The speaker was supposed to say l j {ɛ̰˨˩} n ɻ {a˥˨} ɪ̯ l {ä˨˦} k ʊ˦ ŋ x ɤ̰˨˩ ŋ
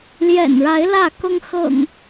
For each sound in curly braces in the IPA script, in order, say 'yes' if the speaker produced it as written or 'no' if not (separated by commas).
yes, no, no